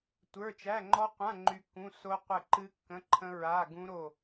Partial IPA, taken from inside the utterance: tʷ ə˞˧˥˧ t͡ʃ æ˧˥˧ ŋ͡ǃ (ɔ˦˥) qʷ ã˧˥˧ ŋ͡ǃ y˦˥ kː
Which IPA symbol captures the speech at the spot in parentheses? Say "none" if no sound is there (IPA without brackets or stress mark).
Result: ɔ˦˥